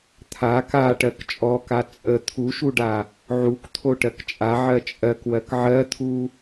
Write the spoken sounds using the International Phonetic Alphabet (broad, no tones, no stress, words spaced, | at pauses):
t̪ʰa kaʈɜk t͡ʃʼɔka t͡sʼə t̪ʰuʃuɖa | ʕuk t̪ʰoʈɜkt͡ʃʼa ʕɜt͡ʃʼɜkwɜk ʕɜt̪ʰu